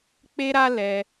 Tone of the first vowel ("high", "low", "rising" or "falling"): high